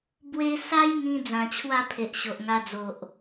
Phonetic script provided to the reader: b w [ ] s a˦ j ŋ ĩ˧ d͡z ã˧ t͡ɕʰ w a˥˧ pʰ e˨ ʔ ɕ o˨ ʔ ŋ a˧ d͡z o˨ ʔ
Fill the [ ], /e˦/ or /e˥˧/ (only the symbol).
e˦